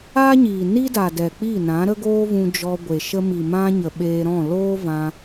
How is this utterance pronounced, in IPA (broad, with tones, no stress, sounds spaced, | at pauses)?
aː˦ ɲ iː˨ n i˦ d a˨ d ɛ˨ k͡p i˦˨ n ã˨˦ ɾ ə˦ ɡ oː˦ v ũ˧ d͡ʒ ɔ˧ ɡʷ e˨ ʃ ə˧ m i˨ m ã˧ ɲ ə˨ ɓ eː˧ ɾ ɔ̃˦˨ l oː˦ v ã˧